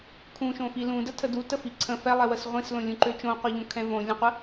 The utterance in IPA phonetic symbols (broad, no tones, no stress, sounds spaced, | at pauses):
kʰ ũ ʃ õ f i l ũ d ə tʰ ə d u t ə f i ǀʰ ə̃ f ɛ lˠ ɛ w ə s ʁʷ ĩ s l õ lʲ ũ ǃ ø t͡ʃ õ qʷ ɛ ʎ õ kʰ ɛ̃ v õ lʲ ə̃ qʷ ə